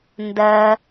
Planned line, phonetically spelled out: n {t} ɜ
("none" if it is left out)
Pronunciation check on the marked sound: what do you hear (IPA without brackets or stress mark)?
d